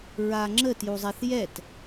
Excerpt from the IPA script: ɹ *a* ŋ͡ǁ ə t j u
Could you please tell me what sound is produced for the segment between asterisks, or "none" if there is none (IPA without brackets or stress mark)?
a